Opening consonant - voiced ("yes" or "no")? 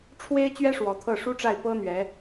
no